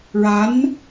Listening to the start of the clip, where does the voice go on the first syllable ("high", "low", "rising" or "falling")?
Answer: rising